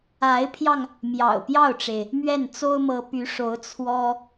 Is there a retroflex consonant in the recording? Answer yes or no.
yes